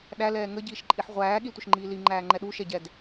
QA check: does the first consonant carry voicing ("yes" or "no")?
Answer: yes